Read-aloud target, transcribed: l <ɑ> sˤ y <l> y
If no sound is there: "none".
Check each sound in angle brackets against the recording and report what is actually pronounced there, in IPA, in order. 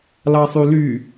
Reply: ɑ, l

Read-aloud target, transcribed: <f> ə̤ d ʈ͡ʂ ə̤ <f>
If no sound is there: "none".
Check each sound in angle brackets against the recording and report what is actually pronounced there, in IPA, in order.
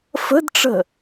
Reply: f, none

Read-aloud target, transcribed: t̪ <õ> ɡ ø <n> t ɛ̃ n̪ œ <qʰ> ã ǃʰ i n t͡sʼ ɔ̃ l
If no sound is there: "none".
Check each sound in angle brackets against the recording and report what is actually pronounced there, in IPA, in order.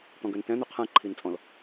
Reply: ɔ̃, n, qʰ

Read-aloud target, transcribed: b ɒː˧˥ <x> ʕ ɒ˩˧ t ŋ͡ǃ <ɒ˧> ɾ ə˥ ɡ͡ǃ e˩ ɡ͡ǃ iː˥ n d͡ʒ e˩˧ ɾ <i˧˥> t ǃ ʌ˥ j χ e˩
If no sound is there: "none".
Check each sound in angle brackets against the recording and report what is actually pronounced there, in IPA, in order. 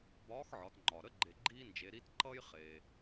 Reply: x, ɒ˩, i˧˥

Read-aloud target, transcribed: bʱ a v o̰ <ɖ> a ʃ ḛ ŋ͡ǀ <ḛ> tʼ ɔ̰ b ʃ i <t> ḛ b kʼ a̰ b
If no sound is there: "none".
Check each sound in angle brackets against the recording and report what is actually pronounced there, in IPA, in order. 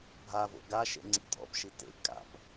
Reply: ɡ, ḭ, t

